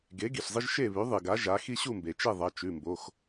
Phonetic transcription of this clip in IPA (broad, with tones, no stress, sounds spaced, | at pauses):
ɡ e˩˥ ɡ i˩ ɬ zˤ ɨ˦ ʒ ʃ e˥˨ β ʉ˩˥ ðˤ ɨ˩ ɡ a˩˥ ʒ a˩˥ x i˦ ɕ u˥˨ m b e˩ t͡ʃ e˥˨ ðˤ ɐ˩˧˩ t͡ʃ ʉ˩˧˩ m b o˩˧˩ x